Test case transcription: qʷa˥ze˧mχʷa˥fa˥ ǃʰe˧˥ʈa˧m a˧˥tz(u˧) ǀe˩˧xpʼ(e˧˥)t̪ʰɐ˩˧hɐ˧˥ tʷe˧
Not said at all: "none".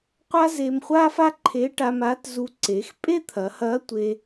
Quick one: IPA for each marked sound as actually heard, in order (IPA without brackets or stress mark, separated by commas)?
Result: u˧, e˥